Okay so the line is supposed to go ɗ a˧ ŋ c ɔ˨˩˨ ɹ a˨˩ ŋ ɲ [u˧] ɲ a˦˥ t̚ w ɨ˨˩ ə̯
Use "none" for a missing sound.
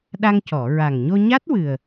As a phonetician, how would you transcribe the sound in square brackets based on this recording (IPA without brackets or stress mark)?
o˧